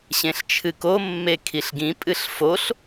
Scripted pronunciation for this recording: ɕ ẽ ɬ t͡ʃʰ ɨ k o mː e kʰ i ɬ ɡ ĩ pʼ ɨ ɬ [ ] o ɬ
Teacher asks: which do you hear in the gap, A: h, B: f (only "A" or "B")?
B